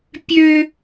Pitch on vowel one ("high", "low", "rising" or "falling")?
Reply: high